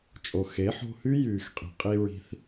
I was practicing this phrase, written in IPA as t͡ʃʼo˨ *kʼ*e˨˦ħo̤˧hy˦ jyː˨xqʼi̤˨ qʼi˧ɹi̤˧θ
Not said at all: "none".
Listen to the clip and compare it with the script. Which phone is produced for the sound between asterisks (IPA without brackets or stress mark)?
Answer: x